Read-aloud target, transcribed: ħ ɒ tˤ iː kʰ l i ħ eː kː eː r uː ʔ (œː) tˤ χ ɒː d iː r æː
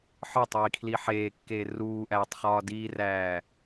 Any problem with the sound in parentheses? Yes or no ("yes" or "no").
yes